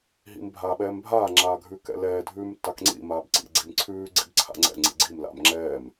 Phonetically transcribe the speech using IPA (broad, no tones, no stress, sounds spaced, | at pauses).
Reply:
ɦ ḭ m bʱ aː ɓ ɛː m bʱ aː ŋ͡ǁ aː ɡʱ ʉ k ɛ̰ l ɛː dʱ ʉː m tː a k ŋ͡ǀ ḭ m aː b ǀ ḭ ɡ͡ǀ i m ǀʰ ʉː ɡ͡ǀ ḭ b ǀʰ a̰ ŋ͡ǀ ɛ̰ ŋ͡ǀ ḭ ɡ͡ǀ i m l a̰ m ŋ͡ǁ ɛː m